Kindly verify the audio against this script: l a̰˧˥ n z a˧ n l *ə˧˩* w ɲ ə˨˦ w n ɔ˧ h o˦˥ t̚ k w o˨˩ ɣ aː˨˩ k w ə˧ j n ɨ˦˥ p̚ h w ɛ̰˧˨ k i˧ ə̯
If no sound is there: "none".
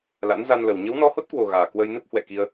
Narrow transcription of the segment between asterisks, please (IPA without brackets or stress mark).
ə˨˩